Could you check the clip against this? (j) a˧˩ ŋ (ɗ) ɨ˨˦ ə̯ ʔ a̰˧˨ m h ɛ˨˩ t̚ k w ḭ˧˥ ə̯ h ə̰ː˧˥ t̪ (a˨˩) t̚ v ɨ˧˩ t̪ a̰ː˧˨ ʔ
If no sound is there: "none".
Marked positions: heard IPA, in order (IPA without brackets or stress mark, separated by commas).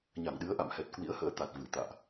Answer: ɲ, ɗ, a˨˩